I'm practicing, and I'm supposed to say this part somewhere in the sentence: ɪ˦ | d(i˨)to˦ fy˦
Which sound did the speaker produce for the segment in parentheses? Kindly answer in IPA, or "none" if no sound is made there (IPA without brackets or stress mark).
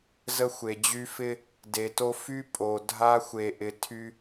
e˨